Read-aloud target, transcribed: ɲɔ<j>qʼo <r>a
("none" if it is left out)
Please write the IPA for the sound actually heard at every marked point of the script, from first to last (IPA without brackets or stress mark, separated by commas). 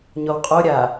w, ɾʲ